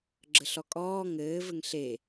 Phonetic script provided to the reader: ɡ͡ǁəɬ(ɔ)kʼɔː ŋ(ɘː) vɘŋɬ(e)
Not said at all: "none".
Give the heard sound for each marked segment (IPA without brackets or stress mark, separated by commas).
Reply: ɔ, ɘː, e